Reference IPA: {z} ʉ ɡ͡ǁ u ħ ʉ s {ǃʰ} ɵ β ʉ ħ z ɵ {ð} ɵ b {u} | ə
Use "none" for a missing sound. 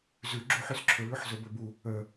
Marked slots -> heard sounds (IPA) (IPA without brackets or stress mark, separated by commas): z, ǁʰ, b, u